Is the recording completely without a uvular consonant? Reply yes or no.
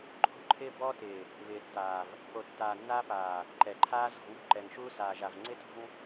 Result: yes